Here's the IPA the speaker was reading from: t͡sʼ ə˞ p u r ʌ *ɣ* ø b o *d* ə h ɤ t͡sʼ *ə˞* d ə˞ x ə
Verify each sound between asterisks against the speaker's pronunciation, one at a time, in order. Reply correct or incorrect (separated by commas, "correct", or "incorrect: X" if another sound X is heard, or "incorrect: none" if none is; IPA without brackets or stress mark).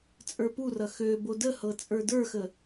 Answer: incorrect: x, correct, correct